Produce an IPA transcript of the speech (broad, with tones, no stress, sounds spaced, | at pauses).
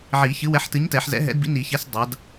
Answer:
ʕ i˨˩˦ ç ɨ˨˥ w ɛ˨˥ ħ t ɨ˨˥ ɲ t ɛ˨˩˦ ħ z ɛ̰˨˥ ɦ ɛ̰˨˥ d b ḭ˨˥ n i˨˩˦ ç ɛ˨˥ s dˤ a˨˥ d